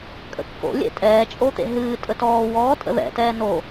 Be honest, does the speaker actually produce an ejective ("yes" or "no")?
yes